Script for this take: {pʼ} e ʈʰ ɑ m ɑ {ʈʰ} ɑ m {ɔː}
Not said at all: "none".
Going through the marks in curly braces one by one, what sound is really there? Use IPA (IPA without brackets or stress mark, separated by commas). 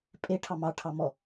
pʼ, ʈʰ, ɔ